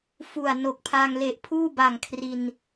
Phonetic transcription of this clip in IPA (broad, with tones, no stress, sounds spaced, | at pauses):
f u˨˩ a̯ n o˨˩ k̚ pʰ a˧ ŋ l e˨˩ ʔ pʰ uː˥˩ b a˨˩ ŋ kʰ r i˧ n